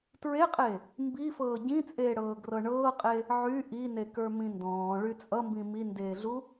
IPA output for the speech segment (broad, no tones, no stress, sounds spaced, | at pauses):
t ɹ e qʼ e | m b i f ɤː ɟ ĩ t͡sʼ eː ɽ ɤː ɡ r ɤ ɳ ɤː qʼ e | ʕ y ʔ i n e k ə˞ m ĩ n d ɔ̃ː ɭ y t͡sʼ ʌ m b ĩ m i n d eː ɮ u